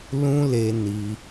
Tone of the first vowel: high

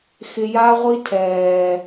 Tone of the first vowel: low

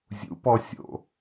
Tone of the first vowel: rising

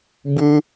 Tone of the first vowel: high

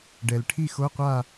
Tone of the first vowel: low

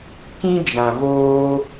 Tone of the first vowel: high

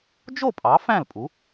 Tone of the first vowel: falling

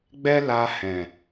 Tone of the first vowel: high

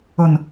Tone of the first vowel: low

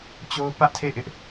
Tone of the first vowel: high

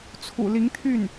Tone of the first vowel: low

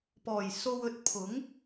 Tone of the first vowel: low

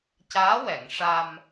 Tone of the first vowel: rising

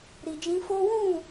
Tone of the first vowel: low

